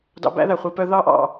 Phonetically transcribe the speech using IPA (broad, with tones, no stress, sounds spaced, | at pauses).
d ɑ̰˧ b æ̰˦ ð æ˨ χʷ i˧ p œ˦ ð ɑ˦ ʔ ɑ̰˧